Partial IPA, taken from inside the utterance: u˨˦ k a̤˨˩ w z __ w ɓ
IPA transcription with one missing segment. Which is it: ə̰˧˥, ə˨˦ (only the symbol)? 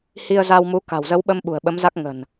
ə˨˦